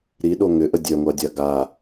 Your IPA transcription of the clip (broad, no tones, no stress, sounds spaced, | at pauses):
ɾ i ɗ o ŋ ʏ ʔ ə dʲ œ ŋʷ a dʲ a ɡ a